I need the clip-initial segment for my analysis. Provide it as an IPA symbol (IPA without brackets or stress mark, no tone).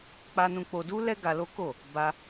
k͡p